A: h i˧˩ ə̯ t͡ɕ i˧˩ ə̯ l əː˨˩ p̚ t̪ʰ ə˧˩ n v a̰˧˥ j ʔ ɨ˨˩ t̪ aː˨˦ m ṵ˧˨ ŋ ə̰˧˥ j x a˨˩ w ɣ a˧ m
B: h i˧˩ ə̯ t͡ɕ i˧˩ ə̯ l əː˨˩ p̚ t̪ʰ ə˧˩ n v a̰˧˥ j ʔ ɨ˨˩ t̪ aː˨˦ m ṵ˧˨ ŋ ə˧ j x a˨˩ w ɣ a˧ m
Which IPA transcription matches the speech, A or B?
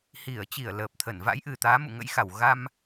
A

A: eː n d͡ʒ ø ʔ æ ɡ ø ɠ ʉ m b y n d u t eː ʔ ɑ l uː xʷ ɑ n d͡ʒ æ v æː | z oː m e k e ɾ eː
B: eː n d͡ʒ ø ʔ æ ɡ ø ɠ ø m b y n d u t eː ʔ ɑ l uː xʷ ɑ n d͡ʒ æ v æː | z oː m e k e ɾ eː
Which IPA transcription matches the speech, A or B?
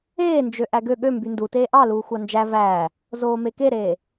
B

